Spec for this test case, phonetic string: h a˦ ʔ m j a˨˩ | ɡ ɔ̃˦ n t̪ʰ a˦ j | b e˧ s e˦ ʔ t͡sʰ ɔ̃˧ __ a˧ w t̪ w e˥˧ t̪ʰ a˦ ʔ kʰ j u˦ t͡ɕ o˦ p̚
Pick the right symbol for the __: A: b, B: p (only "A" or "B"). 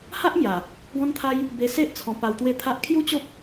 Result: B